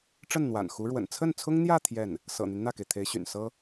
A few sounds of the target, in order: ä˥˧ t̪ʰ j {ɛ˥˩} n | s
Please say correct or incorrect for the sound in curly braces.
correct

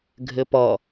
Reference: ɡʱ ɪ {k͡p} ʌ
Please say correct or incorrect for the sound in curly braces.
incorrect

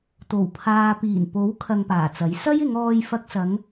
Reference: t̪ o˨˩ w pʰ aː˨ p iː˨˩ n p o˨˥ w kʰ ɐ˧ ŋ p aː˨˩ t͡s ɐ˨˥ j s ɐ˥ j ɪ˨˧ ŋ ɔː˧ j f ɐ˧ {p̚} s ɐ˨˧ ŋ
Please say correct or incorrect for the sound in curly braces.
incorrect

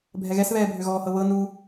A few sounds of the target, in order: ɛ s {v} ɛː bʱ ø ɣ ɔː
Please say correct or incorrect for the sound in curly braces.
incorrect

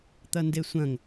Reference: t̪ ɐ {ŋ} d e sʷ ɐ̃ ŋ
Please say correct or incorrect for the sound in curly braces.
incorrect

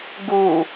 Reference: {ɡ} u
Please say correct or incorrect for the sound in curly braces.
correct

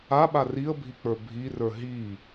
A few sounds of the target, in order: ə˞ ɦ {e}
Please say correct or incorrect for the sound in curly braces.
incorrect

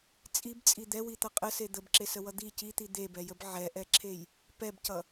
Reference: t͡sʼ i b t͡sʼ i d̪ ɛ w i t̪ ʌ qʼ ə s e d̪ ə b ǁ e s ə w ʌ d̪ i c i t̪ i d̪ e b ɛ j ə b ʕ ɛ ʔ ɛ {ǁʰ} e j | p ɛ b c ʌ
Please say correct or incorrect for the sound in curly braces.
correct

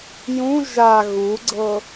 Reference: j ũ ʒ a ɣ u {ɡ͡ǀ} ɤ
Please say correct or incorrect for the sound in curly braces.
correct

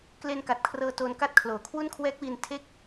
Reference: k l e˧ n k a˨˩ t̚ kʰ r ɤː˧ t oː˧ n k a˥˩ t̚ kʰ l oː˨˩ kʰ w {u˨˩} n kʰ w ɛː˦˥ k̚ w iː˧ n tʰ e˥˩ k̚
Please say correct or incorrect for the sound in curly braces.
incorrect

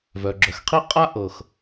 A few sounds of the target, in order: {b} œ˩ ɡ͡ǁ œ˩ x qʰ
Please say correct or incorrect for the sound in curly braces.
incorrect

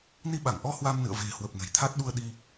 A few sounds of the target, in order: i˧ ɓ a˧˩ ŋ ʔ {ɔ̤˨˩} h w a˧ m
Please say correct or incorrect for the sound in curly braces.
incorrect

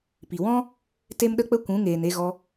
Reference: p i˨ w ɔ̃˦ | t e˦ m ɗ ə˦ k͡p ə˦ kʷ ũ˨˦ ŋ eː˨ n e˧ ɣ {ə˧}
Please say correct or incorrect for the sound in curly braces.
incorrect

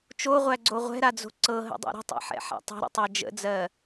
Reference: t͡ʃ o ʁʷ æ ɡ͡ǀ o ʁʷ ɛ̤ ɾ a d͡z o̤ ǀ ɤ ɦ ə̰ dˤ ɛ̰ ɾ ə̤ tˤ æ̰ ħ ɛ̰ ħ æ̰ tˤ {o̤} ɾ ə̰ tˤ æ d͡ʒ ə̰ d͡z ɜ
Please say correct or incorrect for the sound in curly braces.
correct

